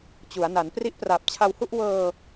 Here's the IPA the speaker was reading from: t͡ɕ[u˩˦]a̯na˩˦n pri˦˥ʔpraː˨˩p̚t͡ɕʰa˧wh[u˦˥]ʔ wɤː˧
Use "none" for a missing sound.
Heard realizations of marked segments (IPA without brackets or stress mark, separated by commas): u˩˦, u˥˩